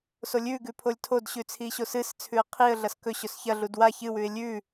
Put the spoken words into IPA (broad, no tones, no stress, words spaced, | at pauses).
solʲʉɡʉ pʰolʲtʰodɕʉ t͡sʰiɕosɨst͡sʰʉə̯ qʰiə̯ɮɐs kɵɕɵs çɐɮud wa çɨwʉɪ̯ lʲʉ